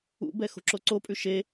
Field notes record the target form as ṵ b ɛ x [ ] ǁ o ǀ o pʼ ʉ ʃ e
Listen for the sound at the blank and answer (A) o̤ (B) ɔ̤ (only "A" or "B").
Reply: A